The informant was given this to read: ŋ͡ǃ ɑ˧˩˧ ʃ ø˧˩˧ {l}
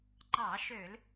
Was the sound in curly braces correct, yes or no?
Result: yes